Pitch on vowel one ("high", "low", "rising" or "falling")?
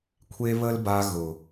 high